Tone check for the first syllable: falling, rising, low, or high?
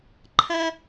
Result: high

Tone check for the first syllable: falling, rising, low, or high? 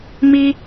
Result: high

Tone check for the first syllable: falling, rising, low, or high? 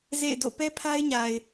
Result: falling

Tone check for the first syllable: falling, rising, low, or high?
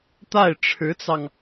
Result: falling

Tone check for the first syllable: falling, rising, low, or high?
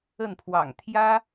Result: falling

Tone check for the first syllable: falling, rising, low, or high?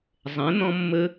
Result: rising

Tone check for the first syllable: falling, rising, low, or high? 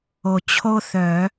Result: low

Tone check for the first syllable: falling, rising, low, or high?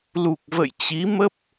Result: low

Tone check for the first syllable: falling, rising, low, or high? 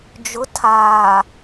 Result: rising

